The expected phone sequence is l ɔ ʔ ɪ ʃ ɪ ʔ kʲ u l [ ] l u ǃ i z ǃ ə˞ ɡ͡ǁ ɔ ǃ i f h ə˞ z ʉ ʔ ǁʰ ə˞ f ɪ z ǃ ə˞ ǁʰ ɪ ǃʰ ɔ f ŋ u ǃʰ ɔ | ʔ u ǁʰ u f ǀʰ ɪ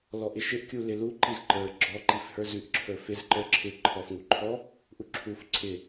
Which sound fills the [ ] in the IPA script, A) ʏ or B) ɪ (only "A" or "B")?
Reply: B